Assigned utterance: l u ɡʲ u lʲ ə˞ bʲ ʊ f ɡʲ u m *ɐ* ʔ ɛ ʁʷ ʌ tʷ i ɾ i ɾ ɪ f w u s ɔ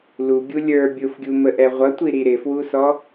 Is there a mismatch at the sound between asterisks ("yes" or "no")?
yes